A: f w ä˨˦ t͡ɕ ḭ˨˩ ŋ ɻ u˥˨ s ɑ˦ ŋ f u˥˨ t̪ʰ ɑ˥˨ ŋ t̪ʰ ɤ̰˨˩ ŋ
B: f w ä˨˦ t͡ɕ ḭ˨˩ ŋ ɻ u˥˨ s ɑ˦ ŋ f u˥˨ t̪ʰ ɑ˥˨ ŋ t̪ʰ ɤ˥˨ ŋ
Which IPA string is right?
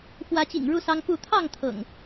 A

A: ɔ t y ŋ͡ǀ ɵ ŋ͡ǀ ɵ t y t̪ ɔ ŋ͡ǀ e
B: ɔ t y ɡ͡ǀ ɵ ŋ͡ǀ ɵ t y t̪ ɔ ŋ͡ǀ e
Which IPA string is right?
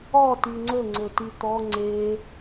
A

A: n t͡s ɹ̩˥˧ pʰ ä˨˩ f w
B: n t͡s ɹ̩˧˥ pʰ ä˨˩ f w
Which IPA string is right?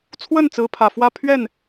B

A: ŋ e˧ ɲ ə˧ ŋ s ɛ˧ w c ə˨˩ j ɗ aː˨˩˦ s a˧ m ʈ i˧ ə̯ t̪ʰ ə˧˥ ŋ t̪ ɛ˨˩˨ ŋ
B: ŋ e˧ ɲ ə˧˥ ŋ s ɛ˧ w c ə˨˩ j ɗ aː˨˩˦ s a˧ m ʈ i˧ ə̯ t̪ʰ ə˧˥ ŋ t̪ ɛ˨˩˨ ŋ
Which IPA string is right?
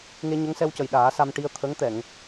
B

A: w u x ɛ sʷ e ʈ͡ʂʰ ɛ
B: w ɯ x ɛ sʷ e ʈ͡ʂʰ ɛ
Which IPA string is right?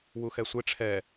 A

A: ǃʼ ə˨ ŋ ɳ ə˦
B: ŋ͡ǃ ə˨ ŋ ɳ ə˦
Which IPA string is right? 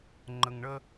B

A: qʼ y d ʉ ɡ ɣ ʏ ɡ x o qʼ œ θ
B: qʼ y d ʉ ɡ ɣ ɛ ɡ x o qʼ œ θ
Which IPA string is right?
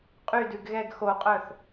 B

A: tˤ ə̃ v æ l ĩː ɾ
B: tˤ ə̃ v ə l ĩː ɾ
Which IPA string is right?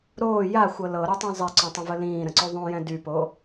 B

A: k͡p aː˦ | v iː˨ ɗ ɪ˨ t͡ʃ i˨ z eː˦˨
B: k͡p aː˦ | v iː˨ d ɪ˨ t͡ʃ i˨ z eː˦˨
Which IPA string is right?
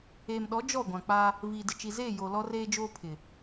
B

